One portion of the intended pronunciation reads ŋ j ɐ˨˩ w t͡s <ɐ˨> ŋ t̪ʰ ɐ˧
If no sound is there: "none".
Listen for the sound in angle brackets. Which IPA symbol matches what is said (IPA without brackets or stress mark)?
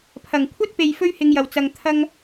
ɐ˨